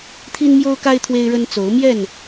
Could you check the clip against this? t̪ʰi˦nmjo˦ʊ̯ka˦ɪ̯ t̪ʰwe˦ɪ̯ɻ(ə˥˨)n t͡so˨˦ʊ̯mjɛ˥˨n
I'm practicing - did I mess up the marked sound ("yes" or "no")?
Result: yes